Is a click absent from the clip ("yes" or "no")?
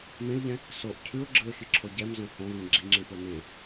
no